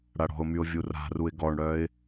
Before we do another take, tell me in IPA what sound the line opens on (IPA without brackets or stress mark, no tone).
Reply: ɽ